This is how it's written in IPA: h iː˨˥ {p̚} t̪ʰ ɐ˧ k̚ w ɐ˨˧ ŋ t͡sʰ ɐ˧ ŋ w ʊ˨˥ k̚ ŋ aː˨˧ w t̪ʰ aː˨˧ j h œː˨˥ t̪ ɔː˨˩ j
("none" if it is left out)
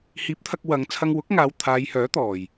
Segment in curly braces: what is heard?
p̚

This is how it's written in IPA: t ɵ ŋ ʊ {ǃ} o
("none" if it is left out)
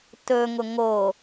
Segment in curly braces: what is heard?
ŋ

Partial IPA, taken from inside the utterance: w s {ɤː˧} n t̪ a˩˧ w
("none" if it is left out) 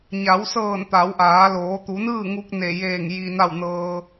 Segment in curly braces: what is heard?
ɤː˧˩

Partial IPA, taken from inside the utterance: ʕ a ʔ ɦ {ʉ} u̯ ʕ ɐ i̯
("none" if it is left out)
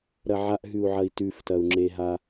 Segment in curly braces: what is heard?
ʉ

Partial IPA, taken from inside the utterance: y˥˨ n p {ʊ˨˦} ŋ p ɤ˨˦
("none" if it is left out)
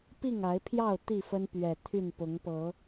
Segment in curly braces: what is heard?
ʊ˨˦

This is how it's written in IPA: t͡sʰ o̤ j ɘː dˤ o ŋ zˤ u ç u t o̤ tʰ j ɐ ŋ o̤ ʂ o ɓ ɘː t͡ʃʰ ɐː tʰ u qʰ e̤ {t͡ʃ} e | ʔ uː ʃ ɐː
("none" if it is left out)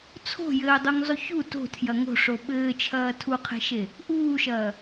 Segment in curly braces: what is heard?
ʃ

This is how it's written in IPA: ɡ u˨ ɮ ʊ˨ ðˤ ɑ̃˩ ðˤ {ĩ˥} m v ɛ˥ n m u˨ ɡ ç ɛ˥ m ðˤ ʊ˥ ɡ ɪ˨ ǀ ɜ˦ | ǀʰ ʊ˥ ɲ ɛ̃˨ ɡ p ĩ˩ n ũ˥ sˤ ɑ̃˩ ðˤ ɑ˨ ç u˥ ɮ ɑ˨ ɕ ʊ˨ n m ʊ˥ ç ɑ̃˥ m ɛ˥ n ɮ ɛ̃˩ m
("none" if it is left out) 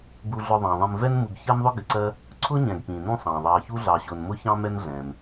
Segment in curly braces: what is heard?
ĩ˨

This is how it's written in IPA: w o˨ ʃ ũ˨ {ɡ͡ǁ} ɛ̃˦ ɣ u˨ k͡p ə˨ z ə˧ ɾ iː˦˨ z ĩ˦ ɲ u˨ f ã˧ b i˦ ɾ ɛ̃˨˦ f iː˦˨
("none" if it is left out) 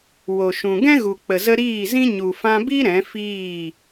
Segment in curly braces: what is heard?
ɡ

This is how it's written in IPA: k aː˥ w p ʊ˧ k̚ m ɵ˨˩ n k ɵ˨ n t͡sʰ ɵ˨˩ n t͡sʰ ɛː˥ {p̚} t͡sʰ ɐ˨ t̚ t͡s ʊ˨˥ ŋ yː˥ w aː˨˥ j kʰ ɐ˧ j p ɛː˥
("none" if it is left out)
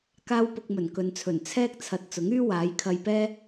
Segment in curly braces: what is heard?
k̚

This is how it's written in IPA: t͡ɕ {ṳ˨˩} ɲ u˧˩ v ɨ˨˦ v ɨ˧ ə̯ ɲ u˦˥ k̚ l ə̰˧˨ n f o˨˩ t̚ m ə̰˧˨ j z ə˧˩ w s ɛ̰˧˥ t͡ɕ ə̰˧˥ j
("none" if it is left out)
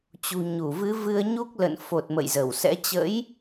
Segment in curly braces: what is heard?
ṳ˨˩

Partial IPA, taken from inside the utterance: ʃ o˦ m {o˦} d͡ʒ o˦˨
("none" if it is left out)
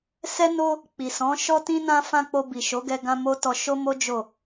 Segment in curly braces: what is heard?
o˦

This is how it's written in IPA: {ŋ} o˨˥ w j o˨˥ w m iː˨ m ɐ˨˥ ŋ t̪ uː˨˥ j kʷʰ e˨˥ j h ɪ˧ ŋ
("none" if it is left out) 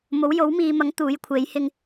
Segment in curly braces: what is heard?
m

